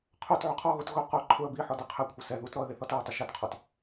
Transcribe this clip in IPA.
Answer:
qʰot ʕʊqʰɔɣot ɣʊ qʊ ǃʰʊə̯ bi ħɔdeqʰɛkʷʰɪ sɛ ðutɾɔə̯ ðeθɔtɛə̯tˤʊ ʃatqʰɔt

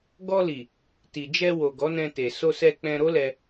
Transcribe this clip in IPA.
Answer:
ɡɔ˧li˨ | ti˨d͡ʒɛ˧wo˨ ɡɔ˨˦nɛ̃˧te˨ so˧sɛ˧ k͡pɛ̃˧ɾo˦lɛ˧

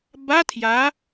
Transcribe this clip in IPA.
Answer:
ba tʰja

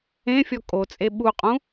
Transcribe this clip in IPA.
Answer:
ẽfʲɔ kʼot͡sʼe ɓuqʼũ

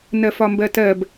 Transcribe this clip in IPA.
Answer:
nɜfɒmbɜtɜb

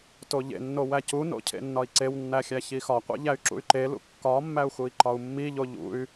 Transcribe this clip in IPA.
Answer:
toʎḛnːo wæcuno̰ cʰḛnːɒi̯ǀewnːæ xʲæçixɒqʷḛ ʎæy̯ǁṵy̯ǃelṵ kːɒmːæu̯ xui̯ǃɒu̯mːiʎo ʎṵy̯

